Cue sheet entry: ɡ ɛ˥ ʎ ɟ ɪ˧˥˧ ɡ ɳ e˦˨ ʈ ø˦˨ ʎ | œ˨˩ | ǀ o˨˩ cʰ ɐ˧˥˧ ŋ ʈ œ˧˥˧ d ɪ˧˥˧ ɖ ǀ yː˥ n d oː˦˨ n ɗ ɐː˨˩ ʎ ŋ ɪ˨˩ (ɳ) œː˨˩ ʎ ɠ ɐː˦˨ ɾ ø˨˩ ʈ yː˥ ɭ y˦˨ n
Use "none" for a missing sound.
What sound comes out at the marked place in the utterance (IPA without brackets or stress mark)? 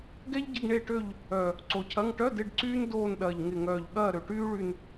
ŋ